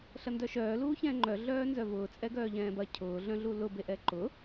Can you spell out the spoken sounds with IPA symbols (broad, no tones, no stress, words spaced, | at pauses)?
ɬɐndœʃœː luːçɛ̃ːŋ͡ǃœ ɮœːnzœvʊː t͡sʼɛɡœːʎɛ̃ːbɐ cʰʊː ɮœ̃ɮulʊ beʔɛǃʊ